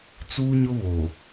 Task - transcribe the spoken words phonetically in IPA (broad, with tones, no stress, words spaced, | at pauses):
t͡suː˦ɲʊ˦βoː˨